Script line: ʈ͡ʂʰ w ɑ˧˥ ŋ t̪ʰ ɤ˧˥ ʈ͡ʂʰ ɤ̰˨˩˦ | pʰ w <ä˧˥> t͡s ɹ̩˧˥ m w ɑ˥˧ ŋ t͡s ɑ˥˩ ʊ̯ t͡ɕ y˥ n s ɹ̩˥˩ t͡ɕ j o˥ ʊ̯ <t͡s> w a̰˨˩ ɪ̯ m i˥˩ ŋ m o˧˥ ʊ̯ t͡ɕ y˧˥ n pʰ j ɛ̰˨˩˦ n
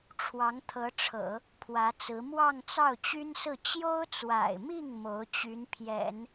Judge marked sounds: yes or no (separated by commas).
yes, yes